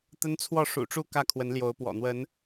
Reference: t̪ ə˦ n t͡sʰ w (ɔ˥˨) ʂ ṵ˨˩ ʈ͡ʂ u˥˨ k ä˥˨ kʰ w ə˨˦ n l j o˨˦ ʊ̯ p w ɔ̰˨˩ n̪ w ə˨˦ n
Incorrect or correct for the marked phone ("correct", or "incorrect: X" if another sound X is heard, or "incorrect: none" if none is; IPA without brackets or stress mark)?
correct